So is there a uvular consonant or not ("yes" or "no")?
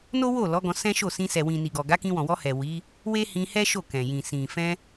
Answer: no